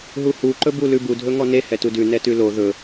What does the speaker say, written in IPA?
ɦ u h u ǃ ɵ b u l ʉ b u dʱ ɵ ŋ ɔ n e h ɛ t u d ʉ n ɛ t ʉ l o ð ɵ

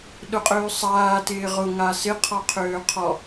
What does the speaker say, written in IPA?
ɗ ʊ qʼ øː sˤ aː t ɪː ʁ ʊ ŋ a s ɪ qʰ ɔ qʰ øː qʰ ɔ

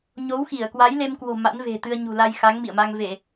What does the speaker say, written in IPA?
ɲ o˨˦ w x i˧˩ ə̯ k w a˨˦ j l e˧ m k w o̤˨˩ m a̰˧˥ n v e̤˨˩ t̪ ɨ˧ ə̯ ɲ ṳ˨˩ l a˧ j x a˨˦ ŋ m ḭ˧˨ ə̯ m a˧ ŋ v e˧˩˨

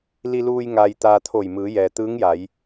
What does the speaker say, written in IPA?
l i˧ l uː˧ j ŋ aː˧ j t̪ aː˧ t̪ʰ o˧˩ j m ɯː˩˧ j ɛː˩ t̪ ɯː˧˥ ŋ j a˩˧ j

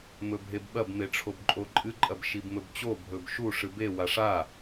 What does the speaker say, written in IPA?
m ɵ bʱ e b ɓ ɐ b m e ʈ͡ʂʰ o b ǃʼ o ǃʼ ɨ ǃʼ ɐ b ʃ i b m ɵ b t͡ɕ o bʱ ɵ b ʃ u ʂ ɨ b e w a ʂ a

